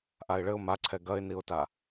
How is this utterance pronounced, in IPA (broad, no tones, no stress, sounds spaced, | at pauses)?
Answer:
ʔ a ɪ̯ ɭ ɘ ʊ̯ m a ǀʰ ɛ ɡ ɐ ɪ̯ n i ʊ̯ t a